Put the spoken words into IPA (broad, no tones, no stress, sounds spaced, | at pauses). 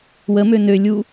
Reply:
w ə m ø n ø lʲ u